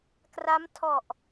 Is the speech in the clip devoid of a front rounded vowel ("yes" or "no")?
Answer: yes